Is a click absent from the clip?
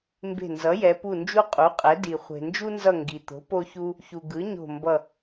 yes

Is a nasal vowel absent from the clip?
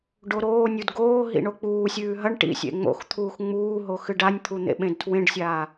no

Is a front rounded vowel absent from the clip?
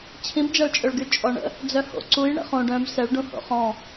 no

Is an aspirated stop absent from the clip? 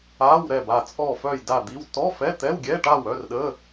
yes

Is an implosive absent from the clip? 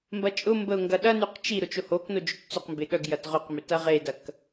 no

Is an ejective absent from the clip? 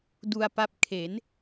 yes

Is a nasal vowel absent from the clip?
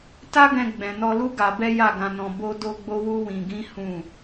no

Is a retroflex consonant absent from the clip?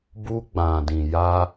yes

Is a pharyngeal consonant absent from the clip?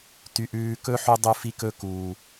no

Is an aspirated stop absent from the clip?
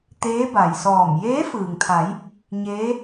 no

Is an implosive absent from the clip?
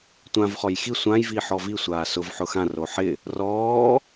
yes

